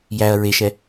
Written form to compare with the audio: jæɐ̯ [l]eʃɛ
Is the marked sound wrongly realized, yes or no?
yes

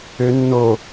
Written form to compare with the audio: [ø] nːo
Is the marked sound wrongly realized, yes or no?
no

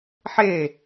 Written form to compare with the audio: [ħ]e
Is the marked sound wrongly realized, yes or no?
no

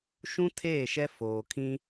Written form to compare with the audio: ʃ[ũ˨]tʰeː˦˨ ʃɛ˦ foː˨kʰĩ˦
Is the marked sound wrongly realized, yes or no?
yes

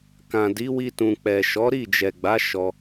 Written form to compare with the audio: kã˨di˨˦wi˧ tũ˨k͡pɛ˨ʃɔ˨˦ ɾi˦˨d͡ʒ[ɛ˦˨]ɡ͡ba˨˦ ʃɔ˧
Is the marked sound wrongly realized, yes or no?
yes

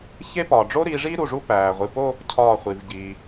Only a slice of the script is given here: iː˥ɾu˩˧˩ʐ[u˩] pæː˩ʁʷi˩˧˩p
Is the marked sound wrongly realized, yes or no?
yes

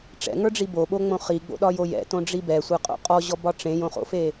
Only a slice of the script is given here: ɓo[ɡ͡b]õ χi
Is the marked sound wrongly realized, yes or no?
yes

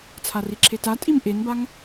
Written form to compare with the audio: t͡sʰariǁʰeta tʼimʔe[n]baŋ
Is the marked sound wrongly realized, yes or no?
no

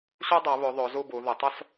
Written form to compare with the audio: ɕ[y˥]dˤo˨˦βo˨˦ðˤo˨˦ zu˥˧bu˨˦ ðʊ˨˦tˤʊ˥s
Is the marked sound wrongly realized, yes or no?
yes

